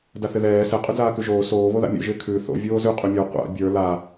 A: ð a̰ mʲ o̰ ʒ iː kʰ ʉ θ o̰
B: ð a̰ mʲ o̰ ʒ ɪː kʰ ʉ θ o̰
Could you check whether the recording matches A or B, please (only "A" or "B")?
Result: B